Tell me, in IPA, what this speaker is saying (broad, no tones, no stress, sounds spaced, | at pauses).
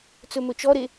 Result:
t͡s ɵ m ɵ t͡ʃ ɔ ɾ e